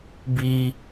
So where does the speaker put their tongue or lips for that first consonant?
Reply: lips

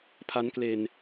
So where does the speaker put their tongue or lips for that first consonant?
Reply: lips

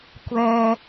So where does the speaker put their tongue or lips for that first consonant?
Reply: velum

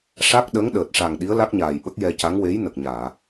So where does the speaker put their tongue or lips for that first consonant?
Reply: retroflex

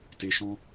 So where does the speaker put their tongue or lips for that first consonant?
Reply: tongue tip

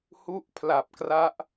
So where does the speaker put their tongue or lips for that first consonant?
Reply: throat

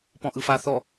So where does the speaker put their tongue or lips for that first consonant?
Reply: lips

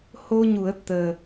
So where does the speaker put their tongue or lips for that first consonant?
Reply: throat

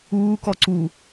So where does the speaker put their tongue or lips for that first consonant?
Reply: velum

